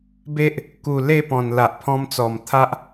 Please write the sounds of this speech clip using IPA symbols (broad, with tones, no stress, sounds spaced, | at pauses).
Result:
b e˦ ʔ | k u˨˩ l e˥˧ p ɔ̃˨˩ n l a˨ ʔ pʰ ɔ̃˧ m t͡s ɔ˨˩ m t̪ʰ a˦ ʔ